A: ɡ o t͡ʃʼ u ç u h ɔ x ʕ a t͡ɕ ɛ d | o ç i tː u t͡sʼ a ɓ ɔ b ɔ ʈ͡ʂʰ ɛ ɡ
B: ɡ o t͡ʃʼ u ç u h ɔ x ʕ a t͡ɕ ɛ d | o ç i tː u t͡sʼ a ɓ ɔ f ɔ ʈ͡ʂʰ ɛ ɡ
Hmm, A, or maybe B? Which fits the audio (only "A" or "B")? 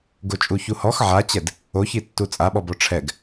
A